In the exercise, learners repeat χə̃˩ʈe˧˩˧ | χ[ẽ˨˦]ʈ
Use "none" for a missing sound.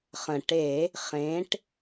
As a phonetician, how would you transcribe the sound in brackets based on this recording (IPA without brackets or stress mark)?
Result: ẽ˨˦